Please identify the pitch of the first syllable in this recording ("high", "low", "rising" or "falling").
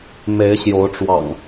rising